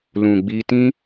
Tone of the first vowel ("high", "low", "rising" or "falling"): low